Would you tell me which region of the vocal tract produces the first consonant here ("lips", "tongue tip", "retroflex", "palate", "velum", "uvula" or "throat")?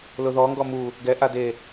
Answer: tongue tip